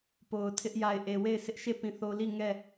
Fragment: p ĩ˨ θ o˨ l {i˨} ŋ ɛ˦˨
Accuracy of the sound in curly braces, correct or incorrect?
incorrect